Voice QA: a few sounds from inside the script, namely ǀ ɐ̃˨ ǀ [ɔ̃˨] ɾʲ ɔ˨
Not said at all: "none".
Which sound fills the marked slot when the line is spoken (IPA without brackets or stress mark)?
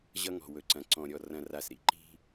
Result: ɔ̃˨